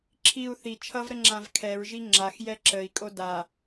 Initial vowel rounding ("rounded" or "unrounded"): unrounded